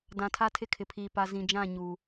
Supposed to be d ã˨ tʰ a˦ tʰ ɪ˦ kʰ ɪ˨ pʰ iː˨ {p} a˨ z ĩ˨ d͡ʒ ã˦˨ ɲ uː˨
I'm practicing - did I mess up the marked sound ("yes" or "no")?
no